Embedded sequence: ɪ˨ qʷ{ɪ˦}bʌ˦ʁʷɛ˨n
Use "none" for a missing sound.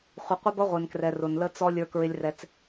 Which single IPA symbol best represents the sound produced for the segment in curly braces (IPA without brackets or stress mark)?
ɪ˦